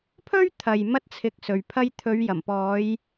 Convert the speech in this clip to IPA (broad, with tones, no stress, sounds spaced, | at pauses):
pʰ ɵ˥ ɥ t̪ʰ ɐ˨ j m ɐ˥ t̚ t͡sʰ ɪ˧ k̚ s ɵ˨ ɥ pʰ ɐ˧ j t̪ʰ ɵ˨˧ ɥ j ɐ˨˩ m p ɔː˨˧ j